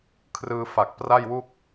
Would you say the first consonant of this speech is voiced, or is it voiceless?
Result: voiceless